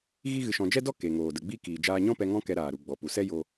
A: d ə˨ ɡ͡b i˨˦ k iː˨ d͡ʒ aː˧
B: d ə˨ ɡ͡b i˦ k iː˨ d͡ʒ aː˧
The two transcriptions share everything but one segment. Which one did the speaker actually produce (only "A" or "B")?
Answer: B